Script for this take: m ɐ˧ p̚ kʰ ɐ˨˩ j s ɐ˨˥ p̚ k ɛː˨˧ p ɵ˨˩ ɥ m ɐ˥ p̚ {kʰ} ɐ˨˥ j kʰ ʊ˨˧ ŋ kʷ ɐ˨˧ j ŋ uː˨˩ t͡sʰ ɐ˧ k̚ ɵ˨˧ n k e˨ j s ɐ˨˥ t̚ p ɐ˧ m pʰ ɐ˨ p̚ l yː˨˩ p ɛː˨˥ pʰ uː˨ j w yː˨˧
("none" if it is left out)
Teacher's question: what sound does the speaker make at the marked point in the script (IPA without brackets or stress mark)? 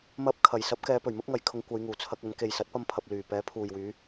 ŋ